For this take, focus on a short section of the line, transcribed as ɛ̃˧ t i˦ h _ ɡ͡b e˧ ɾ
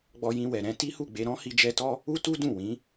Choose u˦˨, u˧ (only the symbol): u˦˨